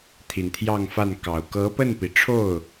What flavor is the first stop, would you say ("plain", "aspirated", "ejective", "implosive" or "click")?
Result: aspirated